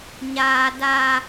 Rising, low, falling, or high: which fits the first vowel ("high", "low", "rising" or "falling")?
high